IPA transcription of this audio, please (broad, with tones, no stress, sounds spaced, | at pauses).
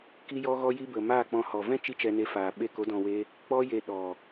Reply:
k i˦ j ɔ˦ ɣ ɔ˦ j i˦ b ə˨ m aː˦˨ k͡p ɔ̃˧ h ɔ˨ v ɛ̃˦ t͡ʃ i˦ t͡ʃ ɛ˧ n e˧ f aː˨ ɓ e˧ k o˨˦ d ɔ̃˨ w e˧ | k͡p ɔ˦ j e˧ ɗ ɔ˨